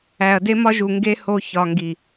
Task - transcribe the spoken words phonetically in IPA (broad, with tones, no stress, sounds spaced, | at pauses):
æ˨ ɐ̯ d e˦ m ɒ˦ ʒ u˨ ŋ ɡ e˦ h o˧ ç ɒ˨ ŋ ɡ i˨